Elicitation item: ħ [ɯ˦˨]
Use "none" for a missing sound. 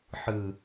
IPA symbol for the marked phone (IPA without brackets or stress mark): ɯ˨